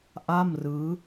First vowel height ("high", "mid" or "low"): low